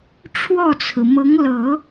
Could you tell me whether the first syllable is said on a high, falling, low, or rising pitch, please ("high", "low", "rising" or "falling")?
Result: falling